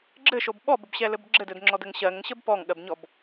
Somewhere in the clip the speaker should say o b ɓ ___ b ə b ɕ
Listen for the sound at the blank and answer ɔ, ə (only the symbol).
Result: ɔ